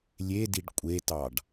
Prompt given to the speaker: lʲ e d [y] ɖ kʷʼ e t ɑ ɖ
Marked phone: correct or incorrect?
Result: incorrect: i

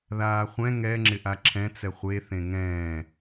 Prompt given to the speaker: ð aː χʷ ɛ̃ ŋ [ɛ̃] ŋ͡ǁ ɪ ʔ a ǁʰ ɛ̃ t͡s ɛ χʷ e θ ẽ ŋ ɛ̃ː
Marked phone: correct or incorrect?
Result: incorrect: ɛ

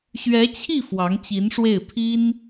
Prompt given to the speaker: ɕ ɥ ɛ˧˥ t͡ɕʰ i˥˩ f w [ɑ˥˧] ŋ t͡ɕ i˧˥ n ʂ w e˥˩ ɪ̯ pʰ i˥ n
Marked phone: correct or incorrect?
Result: incorrect: ɑ˧˥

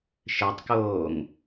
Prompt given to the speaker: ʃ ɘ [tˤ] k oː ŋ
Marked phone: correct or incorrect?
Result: correct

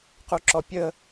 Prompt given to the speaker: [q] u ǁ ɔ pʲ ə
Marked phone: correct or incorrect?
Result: correct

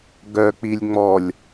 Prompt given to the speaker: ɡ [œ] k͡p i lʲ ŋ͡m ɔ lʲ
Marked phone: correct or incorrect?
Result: correct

